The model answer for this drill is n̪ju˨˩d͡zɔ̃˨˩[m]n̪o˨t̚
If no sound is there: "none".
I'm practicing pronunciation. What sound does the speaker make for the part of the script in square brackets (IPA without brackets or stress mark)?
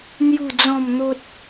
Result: m